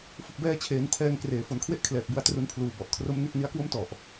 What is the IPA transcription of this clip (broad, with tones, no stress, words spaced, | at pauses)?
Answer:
fɯ˨˩k̚bɛː˧t͡ɕʰeː˩˦n tʰɛː˧ŋkreː˨˩ fo˨˩nkʰwe˦˥ʔkʰlɛː˨˩k̚bu˧a̯ tru˧npʰluː˨˩bɔ˨˩ʔkʰro˦˥m ne˥˩k̚ni˦˥a̯kwo˥˩m tɔ˨˩ʔ